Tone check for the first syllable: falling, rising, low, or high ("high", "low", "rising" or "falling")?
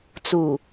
low